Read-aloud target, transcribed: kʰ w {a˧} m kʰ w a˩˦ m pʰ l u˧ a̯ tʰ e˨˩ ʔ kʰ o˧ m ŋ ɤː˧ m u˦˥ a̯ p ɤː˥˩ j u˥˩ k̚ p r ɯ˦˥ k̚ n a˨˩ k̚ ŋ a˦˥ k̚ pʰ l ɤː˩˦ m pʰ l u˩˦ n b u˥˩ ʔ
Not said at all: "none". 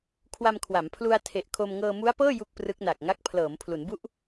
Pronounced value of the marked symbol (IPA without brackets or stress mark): a˧